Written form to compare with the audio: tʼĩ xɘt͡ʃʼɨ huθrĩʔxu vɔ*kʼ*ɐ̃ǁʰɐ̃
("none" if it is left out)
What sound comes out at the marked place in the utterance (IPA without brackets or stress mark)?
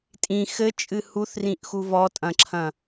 tʼ